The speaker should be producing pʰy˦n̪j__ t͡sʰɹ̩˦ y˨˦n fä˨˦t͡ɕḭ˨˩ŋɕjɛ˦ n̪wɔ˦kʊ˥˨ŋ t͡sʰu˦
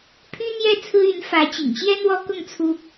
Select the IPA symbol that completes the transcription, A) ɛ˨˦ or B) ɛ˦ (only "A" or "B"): B